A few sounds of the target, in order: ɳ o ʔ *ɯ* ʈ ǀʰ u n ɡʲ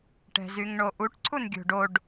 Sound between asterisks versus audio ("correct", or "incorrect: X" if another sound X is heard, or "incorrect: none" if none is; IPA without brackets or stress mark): incorrect: u